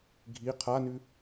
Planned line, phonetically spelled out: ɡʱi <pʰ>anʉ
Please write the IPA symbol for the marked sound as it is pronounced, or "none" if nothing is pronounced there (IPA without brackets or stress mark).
qʰ